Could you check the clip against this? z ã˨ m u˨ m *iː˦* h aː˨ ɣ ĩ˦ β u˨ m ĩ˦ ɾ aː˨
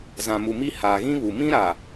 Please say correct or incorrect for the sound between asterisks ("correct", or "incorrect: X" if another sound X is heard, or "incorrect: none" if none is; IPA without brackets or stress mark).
incorrect: i˦